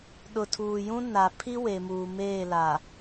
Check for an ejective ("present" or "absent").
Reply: absent